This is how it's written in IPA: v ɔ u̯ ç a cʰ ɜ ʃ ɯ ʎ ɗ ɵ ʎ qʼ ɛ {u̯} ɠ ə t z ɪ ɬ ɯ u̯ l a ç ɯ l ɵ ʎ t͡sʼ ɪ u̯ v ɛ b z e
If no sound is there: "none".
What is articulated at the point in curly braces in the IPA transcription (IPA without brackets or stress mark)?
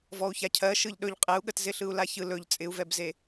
u̯